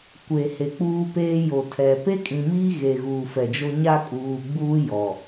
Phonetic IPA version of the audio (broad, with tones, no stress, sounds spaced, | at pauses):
kʷ e˨ h e˨ k͡p uː˦ p eː˦ j o˨ tʰ ɛ˨ p e˦ kʼ ĩ˨ m iː˦ ɣ e˨ ɣ uː˨ f ɛ˨ d͡ʒ o˦ ɲ a˦ kʼ uː˨ ɡ͡b uː˦ j ɔ˨